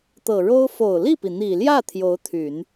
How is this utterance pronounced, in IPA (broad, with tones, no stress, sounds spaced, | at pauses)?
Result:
t̪ ɤ˨˩ ɻ o˥ ʊ̯ f o˨˩ ʊ̯ l i˥˩ p i˩ n̪ i˨˩ l j ä˥˩ t̪ʰ j o˧˥ ʊ̯ t̪ʰ y˨˩˦ n